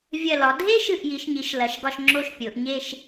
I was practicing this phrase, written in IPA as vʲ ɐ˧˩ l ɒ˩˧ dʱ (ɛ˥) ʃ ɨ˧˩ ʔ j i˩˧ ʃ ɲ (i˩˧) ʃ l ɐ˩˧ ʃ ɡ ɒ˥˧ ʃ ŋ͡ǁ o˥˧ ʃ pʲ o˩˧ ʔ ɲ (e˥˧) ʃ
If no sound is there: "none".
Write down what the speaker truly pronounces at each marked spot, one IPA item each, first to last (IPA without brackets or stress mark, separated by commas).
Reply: e˥, i˩˧, e˥˧